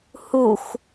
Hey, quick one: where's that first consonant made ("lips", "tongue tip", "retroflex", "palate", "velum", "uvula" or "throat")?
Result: throat